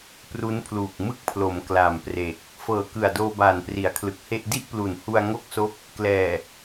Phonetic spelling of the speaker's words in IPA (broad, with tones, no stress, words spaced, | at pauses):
pru˦˥npʰluː˨˩k̚ mɯ˥˩k̚pʰlo˩˦m kla˨˩mpre˨˩k̚ | fɤː˨˩kɯ˨˩a̯doː˧ baː˨˩npri˩˦a̯kʰlɯ˨˩k̚he˥˩ʔ di˥˩ʔplu˨˩nhu˧a̯ ŋo˥˩k̚so˦˥k̚ | klɛː˨˩